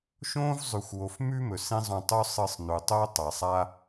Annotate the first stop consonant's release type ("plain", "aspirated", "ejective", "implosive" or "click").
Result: plain